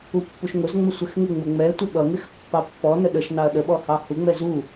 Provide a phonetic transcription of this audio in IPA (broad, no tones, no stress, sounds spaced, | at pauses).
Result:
u pː u ʃ ŋ ʊ z ŋ͡m ə sʷ ɪ x ŋ ɪ ŋ͡m ʊ ŋ͡m ɛ tʷ ɪ ɓ ʌ ŋ ɪ x pː ɑ pː ɔ n ə ɗ ə ʃ n ɑ ɐ̯ ɗ ə ɓ ɔ h ɑ h u ŋ͡m ɛ z u